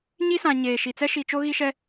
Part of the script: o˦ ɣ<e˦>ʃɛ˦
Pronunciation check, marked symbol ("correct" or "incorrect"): incorrect